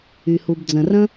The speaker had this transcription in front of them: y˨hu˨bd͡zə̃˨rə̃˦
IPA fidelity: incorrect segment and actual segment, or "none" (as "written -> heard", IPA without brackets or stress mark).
none